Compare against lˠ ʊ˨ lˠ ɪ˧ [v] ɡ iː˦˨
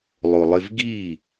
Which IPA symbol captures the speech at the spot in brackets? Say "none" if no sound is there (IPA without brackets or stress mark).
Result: v